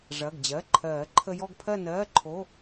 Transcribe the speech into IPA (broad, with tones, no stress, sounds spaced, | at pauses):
ʐ ɐ˩˧˩ ɡ d͡ʑ ɜ˩˧˩ ǃʰ ɜː˨˩˦ ǃʰ ə˧ j ɔ˥˧ ɡ pʰ ɜ˥˧ n ɜː˧˥˧ ǃʰ o˧˥˧